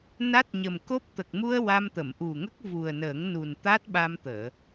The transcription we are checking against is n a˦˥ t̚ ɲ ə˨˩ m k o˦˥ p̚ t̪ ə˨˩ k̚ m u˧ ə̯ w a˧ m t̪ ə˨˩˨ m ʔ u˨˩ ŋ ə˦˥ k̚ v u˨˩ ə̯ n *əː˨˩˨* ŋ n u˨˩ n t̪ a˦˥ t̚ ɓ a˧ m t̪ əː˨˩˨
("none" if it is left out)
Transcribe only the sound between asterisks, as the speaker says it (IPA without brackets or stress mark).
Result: əː˨˩˦